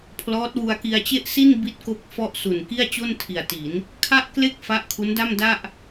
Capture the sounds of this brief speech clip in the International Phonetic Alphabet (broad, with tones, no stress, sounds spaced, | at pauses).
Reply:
pʰ l ɔː˦˥ t̚ w u˧ a̯ k i˧ a̯ t͡ɕ e˥˩ ʔ s i˥˩ n b i˦˥ t̚ k o˦˥ k̚ f ɔ˥˩ ʔ s u˨˩ n k i˥˩ a̯ t͡ɕ o˥˩ n tʰ i˨˩ a̯ t i˩˦ n | kʰ a˥˩ ʔ k l e˥˩ k̚ f a˦˥ ʔ kʰ u˦˥ n d a˥˩ m d a˥˩ ʔ